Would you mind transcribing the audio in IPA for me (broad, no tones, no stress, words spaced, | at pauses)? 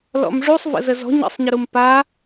lɔ̰mʐusˤ və̰zəzɔ̤ ɲə̰sˤɲɪɾum pa